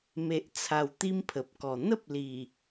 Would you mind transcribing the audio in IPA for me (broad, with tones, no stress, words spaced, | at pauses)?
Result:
me˨ʔ t͡sʰa˧wt̪i˦mpʰə˨p̚kɔ˨˩ n̪ə˦p̚li˨˩